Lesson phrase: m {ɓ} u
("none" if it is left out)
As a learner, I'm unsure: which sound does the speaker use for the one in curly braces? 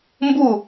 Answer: b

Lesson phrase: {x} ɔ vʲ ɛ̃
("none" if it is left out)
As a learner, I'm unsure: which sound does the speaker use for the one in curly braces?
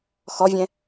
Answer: x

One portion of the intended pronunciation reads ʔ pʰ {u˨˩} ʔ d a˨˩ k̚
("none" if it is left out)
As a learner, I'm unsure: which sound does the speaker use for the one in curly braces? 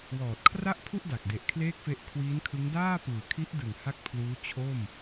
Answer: u˥˩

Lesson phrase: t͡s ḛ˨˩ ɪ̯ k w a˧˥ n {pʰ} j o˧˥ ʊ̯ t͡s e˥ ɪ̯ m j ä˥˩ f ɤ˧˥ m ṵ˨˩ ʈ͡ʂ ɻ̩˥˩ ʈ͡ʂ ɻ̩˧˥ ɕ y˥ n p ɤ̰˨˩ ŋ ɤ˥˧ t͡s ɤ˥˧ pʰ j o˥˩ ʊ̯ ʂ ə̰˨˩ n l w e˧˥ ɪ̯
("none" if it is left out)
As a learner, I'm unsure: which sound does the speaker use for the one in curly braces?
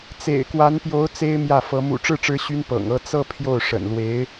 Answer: p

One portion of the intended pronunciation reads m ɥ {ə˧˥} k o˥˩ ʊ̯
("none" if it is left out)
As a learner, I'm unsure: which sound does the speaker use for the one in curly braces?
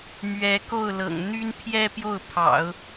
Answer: ɛ˧˥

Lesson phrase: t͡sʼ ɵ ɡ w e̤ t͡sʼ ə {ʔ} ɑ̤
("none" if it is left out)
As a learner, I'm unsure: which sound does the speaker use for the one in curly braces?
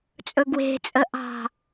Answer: ʔ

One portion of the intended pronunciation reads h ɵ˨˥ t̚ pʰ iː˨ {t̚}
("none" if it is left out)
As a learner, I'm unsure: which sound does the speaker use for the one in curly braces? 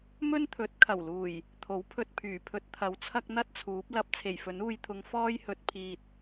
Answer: t̚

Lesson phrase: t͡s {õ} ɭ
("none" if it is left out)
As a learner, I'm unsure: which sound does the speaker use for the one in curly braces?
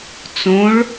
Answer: õ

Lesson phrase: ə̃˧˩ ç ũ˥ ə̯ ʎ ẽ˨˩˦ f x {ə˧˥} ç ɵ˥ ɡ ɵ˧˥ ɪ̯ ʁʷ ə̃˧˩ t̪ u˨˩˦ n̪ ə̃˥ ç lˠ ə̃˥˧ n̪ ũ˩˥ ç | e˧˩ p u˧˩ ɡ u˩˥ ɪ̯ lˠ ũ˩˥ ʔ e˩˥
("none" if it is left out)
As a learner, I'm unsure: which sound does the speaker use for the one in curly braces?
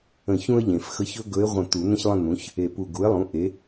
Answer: ə˧˥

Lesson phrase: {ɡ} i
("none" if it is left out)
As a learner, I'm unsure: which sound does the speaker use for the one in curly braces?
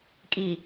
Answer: kʼ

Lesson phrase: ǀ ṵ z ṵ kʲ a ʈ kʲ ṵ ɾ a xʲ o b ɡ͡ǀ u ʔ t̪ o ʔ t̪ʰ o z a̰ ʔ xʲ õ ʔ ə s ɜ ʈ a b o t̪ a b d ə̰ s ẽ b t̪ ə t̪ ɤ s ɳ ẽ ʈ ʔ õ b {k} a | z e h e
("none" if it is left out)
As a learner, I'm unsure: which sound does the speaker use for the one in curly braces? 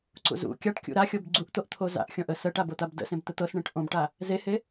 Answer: ʈ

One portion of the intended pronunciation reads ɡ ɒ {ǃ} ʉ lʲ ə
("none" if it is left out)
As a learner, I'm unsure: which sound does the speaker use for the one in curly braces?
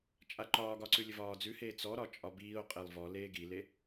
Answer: ǀ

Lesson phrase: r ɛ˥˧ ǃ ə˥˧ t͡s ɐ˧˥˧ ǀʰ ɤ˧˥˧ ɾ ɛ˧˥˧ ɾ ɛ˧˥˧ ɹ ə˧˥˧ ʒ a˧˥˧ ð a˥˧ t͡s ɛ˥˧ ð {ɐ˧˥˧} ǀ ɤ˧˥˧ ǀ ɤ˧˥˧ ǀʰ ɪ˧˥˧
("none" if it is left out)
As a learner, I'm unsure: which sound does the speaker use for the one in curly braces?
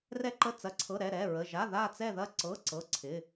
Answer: ɐ˥˧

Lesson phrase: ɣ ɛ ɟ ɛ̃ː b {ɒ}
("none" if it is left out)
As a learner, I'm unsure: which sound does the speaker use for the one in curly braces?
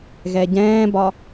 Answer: ɒ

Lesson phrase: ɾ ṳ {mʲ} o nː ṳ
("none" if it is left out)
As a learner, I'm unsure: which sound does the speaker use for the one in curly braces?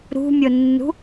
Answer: mʲ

